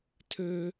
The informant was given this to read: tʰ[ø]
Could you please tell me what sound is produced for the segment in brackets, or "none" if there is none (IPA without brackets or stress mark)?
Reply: ø